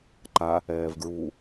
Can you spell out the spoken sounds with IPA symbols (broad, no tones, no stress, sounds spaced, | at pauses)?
ǃ a | ɛː v ɡ ɹ u